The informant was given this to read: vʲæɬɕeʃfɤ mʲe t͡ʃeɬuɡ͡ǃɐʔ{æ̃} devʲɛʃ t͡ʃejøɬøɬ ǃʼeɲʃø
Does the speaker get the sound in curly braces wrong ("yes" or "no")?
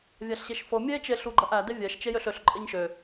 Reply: yes